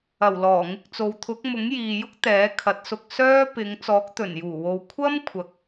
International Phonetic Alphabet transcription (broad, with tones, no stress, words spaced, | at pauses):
ɐ˨˩w lɔː˨˩ŋɪ˧k̚t͡so˨˧w t̪ʰʊ˨˥k̚mʊ˨˥ŋ jiː˨ jʊ˥k̚t̪ɛː˨˥kʰɐ˨˥t̚sʊ˧k̚ sœː˥ pɪ˨˧ŋ t͡sɔː˨˥k̚t̪ɵ˨˩njuː˨˩wo˨w kʷʰɐ˥m kʷʰɐ˨k̚